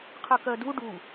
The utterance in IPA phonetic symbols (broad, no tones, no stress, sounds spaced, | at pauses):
qʰ ɯ k ɜ d u ɖ u